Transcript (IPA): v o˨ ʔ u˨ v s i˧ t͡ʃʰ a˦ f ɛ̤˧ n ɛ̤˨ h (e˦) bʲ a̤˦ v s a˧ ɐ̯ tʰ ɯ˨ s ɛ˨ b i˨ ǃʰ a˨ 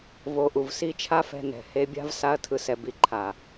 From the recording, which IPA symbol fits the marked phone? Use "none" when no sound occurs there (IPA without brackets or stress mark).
e˧